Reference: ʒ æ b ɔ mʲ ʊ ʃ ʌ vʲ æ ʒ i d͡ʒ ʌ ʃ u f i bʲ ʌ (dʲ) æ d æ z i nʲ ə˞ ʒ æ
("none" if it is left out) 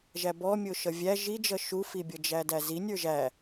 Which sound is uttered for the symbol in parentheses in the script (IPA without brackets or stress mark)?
d͡ʒ